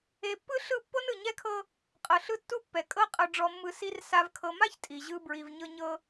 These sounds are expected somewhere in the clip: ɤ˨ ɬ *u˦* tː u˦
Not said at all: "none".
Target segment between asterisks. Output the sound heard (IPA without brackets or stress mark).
ɯ˦